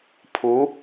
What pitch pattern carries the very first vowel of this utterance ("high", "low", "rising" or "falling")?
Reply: rising